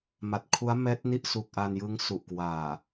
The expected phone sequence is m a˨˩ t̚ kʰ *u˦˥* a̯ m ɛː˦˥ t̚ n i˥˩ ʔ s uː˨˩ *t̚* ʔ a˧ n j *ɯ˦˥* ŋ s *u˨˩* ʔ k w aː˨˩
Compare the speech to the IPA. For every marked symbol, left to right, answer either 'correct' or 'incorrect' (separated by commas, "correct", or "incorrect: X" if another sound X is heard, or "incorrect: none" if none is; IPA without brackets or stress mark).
correct, incorrect: k̚, correct, correct